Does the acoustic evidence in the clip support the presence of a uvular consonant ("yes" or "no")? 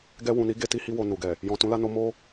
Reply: no